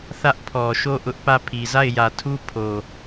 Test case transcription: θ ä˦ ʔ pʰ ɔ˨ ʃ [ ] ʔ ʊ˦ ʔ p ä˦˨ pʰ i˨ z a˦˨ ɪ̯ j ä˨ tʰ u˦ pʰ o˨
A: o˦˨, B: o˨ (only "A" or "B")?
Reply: A